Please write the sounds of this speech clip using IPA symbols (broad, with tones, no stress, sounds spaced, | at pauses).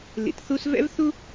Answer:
l ḭ˨ t θ u˦ s v ɛ̰˥ v θ u˥